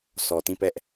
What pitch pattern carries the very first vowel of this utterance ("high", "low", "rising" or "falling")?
low